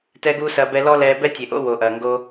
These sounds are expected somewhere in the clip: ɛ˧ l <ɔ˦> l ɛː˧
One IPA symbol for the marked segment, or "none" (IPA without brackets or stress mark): ɔ˦